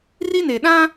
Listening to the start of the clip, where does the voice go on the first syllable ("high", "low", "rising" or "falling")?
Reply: high